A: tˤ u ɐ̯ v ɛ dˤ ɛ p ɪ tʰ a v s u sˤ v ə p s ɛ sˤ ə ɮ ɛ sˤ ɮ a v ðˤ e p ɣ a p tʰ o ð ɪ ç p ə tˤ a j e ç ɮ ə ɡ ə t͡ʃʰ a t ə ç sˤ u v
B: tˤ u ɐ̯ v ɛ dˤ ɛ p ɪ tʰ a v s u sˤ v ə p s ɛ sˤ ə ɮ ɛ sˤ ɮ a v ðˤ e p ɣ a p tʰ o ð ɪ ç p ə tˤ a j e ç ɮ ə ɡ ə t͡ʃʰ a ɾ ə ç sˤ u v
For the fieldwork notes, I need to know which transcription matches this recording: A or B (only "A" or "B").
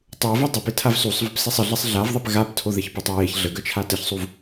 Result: A